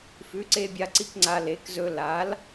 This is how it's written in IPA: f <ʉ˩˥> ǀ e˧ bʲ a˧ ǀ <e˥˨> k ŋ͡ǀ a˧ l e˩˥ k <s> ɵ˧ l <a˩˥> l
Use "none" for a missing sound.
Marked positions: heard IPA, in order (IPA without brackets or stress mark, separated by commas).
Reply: ʉ˩˥, i˥˨, z, a˩˥